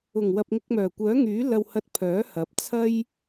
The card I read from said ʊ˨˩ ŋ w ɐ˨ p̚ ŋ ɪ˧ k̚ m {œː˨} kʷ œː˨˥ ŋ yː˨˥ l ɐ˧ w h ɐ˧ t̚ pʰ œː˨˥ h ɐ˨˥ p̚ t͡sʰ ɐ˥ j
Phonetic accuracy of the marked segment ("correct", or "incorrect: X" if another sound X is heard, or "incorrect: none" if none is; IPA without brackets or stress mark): incorrect: œː˨˩